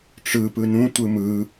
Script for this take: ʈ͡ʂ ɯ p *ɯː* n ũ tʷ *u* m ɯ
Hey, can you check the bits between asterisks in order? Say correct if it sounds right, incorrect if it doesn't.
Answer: incorrect: ɯ, incorrect: ɯ

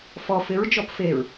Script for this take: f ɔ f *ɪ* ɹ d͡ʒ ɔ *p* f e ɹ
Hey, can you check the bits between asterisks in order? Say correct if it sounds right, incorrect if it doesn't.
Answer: correct, correct

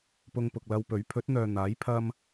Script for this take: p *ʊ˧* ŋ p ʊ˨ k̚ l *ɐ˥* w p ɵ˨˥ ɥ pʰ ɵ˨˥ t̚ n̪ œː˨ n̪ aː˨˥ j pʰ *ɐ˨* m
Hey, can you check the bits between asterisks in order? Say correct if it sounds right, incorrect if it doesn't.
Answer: correct, incorrect: ɐ˧, incorrect: ɐ˥

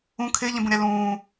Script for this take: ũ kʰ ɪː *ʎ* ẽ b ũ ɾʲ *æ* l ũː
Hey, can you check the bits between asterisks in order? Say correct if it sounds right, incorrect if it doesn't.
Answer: correct, incorrect: a

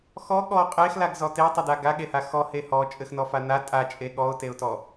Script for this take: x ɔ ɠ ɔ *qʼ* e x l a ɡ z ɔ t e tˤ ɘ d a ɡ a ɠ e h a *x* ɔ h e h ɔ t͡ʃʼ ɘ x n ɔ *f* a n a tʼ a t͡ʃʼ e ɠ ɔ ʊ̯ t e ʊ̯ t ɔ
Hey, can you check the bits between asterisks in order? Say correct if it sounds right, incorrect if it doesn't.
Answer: correct, correct, correct

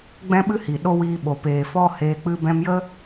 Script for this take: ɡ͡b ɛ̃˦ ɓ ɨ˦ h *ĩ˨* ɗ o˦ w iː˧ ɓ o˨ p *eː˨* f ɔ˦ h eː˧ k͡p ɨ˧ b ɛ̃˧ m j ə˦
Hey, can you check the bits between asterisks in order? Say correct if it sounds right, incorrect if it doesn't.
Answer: incorrect: i˨, correct

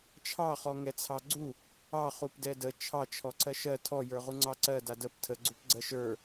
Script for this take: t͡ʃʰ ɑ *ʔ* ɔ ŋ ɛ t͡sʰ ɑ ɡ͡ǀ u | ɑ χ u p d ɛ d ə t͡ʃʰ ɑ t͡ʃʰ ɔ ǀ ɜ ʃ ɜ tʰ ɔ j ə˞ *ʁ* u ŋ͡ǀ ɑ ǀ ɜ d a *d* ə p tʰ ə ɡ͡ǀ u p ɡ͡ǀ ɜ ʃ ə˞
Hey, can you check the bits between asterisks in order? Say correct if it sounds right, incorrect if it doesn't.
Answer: incorrect: χ, correct, correct

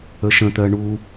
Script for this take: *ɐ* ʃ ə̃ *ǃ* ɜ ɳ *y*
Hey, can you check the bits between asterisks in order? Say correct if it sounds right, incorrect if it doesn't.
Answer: incorrect: ə, incorrect: t̪, incorrect: u

